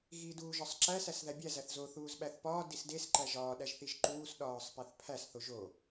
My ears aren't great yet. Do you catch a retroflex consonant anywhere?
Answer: no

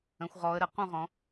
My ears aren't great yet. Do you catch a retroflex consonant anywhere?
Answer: no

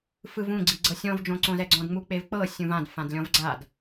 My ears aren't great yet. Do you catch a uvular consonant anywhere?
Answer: no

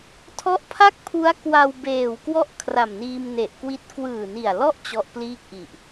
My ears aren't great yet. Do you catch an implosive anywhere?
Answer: no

